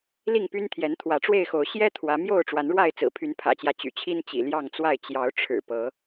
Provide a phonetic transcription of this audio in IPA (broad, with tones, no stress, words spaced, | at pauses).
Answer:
li˥˨ŋpy˦n t̪ʰjɛ˨˦nt̪ʰwä˨˦ʈ͡ʂwe˥˨ɪ̯xo˨˦ʊ̯ ɕjɛ˦ t̪ʰwä˨˦mjo˥˨ʊ̯ ʈ͡ʂwa˨˦nɻwa˥˨ɪ̯t͡sɹ̩˨˩ pʰy˨˦npʰä̰˨˩t͡ɕjä˦ t͡ɕy̰˨˩t͡ɕʰi˦n t͡ɕḭ˨˩ ljɑ˥˨ŋt͡swa˥˨ɪ̯ t͡ɕjɑ˨˦ʊ̯ ʈ͡ʂʰɻ̩˨˩ pɤ˨˦